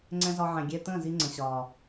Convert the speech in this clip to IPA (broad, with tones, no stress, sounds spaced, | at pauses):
ŋ͡ǀ ɛ̃˧ z ɒ˧ ʕ ɛ̃˨ ɡʲ ɛ˧ t̪ ə̃ː˦˨ z i˧ ŋ͡ǀ ə̃˨ ɕ ɒː˨